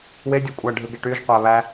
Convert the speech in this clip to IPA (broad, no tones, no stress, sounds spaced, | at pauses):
w e dʲ o kʷʼ æ ɖʱ ɯ ɡ e ʈ y ʒ qʷ æ β æ